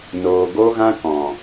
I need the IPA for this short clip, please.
n oː˨ ɡ o˦ ɣ ã˦ k ɔ̃˨

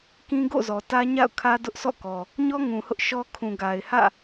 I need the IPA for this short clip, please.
k ĩ˦ ɡ o̰˦˨ z ɔ˨ t ä˦ ɲ a̰˦˨ ʊ̯ kʰ ä˦ d ʊ˦ ʔ sʰ ɔ̰˦˨ k ɔ˨ | ɲ ɔ˦ ŋ ũ˨ h ʊ˦ ʔ ʃ ɔ˦ kʰ ũ˨ ɡ a˨ ɪ̯ h ä̰˦˨

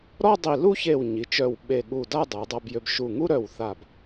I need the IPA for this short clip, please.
ɾ ɔ˥˧ dˤ i˧˩ l u˥˧ ç e˧˩ w ɲ i˩˧ t͡ʃ œ˧˩ w ɓ e˧˩ ɠ u˧˩ d a˥˧ dˤ ə˩˧ w dˤ a˧ b j ø˧ b ʃ u˧˩ ŋ u˥ ɾ œ˧˩ w θ a˧˩ b

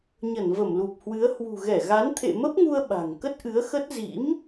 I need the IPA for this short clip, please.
ɲ ə˧˩ n v ə˧˩ m l u˨˩ p̚ h w ɨ˨˦ ə̯ h w ṳ˨˩ ɣ ɛ˧˩ ɣ a˨˦ n t̪ʰ ḛ˧˨ m ə˦˥ p̚ ŋ u˧ ə̯ ɓ a̤˨˩ ŋ k ə˦˥ t̚ ʔ ɨ˨˦ ə̯ x ə˦˥ t̚ z ḭ˧˥ m

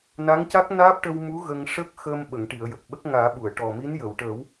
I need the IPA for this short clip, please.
n a˧˥ ŋ c a˦˥ k̚ n aː˦˥ p̚ ʈ ə˧ w m u˧˥ ɣ ə˧ ŋ ʂ ə˦˥ k̚ x əː˧ m ɓ ə˨˩˨ ŋ ʈ i˨˩˨ ə̯ j ə˨˩ k̚ ɓ ə˦˥ k̚ ŋ aː˨˩˦ ɓ u˨˩˨ ə̯ ʈ ɔ˨˩ m i˧˥ n j ə˨˩˨ w ʈ əː˨˩˦ w

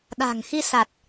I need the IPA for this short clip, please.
ɗ a̤˨˩ ŋ x i˧ s a˨˩ t̚

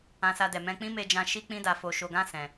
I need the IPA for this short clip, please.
ã˧ s a˧ d ɛ˨ m ɛ̃˧ k͡p ĩ˦ m e˧ d͡ʒ ã˧ ʃ i˦ k͡p ĩ˦ d a˧ f o˧ ʃ o˧ ɡ ã˦ s ɛ̃˧

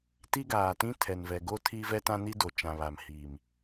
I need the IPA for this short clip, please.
t i˦ ɡ aː˨ t ĩ˦ tʰ ɛ˨ n v ɛ˨ ɡ o˦ tʰ i˦ v ɛ˦ t ã˦ n i˦ d o˨ t͡ʃ ã˨ β a˨ m h iː˨ m

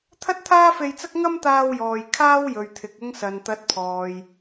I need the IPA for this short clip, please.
t̪ʰ ɐ˥ t̚ t̪ʰ aː˥ f e˧ j t͡s ɐ˥ k̚ ŋ ɐ˥ m t̪ aː˧ w j ɔː˨ j kʰ aː˥ w j ɵ˨ ɥ t̪ʰ ɪ˨ k̚ ʊ˧ ŋ s ɐ˨ n t̪ ɐ˨˥ t̚ pʰ ɔː˨ j

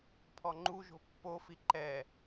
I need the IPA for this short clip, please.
pʰ ɔ ŋ͡ǃ u ʒ o̤ pː o f i ǃ ɛ

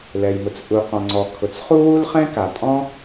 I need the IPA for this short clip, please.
l ɛ˩ j m ʊ˩ t͡s ʔ u˩ q ɔ̃˩ ŋ͡ǀ ɔ˩ kʰ ʊ˩ t͡s χ u˥ w u˥ l χ ɛ̃˥ k a˩ tʼ ɔ̃˥

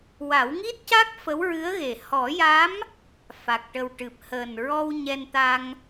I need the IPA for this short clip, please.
w a˨˩˦ w ŋ i˦˥ t̚ c a˦˥ k̚ f ə˧˥ w ɹ ɨ˧˥ ə̯ ɣ e˨˩ h ɔ˨˩˦ j a˧˥ m | f a˨˩ k̚ ʈ ə˨˩ w ʈ ɨ˨˩ p̚ h əː˨˩ n ɹ ɔ˧ w ɲ ɛ˧ n t̪ a˧ ŋ

